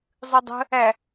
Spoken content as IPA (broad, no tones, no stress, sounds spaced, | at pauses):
zˤ ʉ dˤ ə̤ | æ